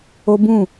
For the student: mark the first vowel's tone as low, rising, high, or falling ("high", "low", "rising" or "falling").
high